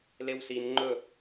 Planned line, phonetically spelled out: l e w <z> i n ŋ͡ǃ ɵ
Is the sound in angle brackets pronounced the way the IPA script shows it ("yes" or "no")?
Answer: no